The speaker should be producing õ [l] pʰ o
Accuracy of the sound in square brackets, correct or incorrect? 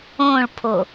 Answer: incorrect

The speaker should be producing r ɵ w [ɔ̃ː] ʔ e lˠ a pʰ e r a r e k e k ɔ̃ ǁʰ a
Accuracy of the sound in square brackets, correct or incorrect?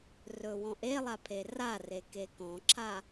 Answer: incorrect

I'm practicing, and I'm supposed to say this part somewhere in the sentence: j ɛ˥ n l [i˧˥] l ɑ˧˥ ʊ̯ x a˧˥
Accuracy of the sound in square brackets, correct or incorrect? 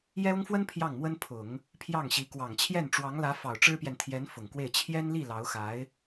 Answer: incorrect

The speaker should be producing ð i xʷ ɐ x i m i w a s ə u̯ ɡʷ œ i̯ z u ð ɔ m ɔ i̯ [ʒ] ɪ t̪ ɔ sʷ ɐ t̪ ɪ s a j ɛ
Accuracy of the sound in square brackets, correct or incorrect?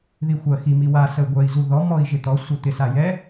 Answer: correct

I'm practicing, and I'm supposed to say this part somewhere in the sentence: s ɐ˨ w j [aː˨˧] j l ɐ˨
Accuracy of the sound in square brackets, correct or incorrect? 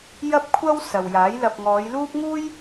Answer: incorrect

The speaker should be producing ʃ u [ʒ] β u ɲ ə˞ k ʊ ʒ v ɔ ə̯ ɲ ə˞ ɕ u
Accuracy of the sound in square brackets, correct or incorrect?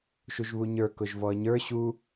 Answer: correct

